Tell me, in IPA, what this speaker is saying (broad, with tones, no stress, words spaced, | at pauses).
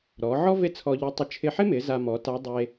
ɾɔ˩˧ʕɔ˥ ve˥t͡sʰɔ˧ʎɪ˧˥tˤe˧ t͡ʃʰɪ˧ħɪ˥mɪ˩˧ za˧mɔ˩˧ta˧˥ dˤe˧